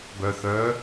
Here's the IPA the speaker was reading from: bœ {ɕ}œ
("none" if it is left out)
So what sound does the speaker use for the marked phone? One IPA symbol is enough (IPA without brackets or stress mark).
θ